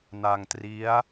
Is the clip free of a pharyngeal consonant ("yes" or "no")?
yes